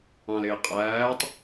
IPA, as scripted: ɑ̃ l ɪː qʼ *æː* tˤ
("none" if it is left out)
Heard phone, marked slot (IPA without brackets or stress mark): æː